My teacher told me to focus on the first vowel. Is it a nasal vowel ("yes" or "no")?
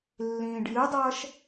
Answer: yes